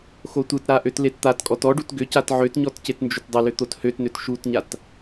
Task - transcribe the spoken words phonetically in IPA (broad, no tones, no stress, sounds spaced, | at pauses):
x o tʷ ɯ t ɾ a ʔ ø t l e t t̪ a t kʼ ɔ t ɔ ɖ u t ɡ ʏ c a t ʕ ø t ɲ ɔ t c e t n d͡ʒ ʏ t dˤ ʏ l ʏ t̪ o t h ø t n ø t ʃ u t ɲ a t